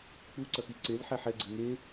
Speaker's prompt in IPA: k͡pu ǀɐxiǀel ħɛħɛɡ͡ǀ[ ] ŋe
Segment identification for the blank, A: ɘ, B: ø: A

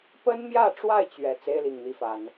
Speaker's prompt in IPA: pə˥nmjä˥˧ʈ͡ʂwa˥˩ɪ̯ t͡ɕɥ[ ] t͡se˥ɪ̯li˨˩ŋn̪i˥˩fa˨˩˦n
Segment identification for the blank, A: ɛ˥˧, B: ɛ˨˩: B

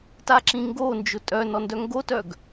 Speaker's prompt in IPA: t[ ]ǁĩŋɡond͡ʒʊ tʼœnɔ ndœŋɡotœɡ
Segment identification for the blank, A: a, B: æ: A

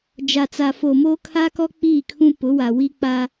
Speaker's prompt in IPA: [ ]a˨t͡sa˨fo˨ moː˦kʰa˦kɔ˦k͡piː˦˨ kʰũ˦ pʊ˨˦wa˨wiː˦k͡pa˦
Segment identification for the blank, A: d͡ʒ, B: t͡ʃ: A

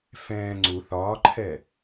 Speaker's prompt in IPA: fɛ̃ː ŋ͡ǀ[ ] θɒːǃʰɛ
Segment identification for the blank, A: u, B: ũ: A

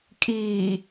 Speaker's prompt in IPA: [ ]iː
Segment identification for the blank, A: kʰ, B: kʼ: B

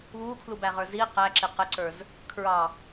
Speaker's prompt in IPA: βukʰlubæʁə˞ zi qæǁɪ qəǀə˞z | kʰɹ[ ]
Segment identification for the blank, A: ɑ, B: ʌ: A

